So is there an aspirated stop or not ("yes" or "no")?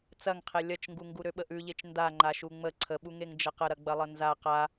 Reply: yes